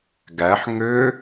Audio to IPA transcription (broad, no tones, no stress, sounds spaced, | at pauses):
ɡ æ ħ ŋ ø